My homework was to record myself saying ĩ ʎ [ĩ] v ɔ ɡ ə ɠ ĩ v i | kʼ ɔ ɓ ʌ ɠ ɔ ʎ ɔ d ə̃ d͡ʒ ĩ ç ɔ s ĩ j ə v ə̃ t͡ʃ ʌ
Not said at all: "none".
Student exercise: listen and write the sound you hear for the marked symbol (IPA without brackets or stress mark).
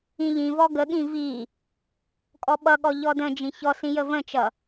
ĩ